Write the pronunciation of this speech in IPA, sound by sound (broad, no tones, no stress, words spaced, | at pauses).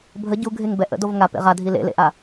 bʱə ɟuɡʱeŋbɛ ʔə̰dov ŋapḛ ʁadʱi lḛlḛʔa